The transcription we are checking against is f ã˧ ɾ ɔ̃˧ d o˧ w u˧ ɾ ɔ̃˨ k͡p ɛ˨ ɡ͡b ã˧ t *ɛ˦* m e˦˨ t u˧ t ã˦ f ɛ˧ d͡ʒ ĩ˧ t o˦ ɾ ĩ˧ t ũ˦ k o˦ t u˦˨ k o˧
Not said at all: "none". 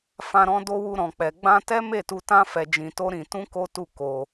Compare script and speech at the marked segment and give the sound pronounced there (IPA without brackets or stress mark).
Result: ɛ˦